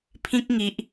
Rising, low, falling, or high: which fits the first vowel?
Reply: high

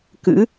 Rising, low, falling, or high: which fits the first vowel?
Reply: rising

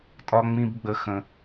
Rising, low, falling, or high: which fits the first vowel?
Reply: high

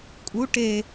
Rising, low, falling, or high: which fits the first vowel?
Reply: rising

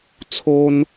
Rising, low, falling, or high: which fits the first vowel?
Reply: high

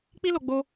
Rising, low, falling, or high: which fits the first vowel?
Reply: high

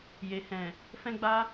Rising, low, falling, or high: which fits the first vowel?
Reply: low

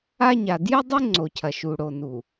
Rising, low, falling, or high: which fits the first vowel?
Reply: high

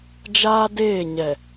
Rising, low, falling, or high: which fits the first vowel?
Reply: high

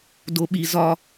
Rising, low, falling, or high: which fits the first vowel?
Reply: low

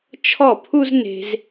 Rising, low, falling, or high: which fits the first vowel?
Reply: falling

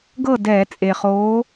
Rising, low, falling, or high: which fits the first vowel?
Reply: falling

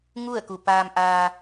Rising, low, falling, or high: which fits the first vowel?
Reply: falling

